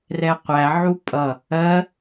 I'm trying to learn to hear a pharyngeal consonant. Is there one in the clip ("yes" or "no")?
yes